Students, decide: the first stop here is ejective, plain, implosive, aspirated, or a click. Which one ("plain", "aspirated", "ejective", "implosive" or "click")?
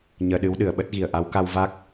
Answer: implosive